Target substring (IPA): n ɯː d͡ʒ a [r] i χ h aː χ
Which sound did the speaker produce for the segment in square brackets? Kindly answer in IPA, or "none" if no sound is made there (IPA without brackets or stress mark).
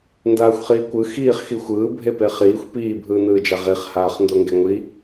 ʁ